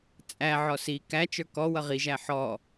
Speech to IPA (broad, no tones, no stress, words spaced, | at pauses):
t͡sʼæ ʕɔsi kæt͡ʃə˞ kɔ wʌʁiʒæ ħɔ